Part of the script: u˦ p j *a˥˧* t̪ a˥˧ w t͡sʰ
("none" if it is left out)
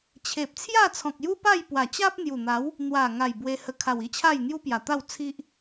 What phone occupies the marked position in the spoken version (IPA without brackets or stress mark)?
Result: a˨˩